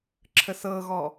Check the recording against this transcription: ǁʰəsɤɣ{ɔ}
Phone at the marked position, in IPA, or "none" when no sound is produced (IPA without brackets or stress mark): ɔ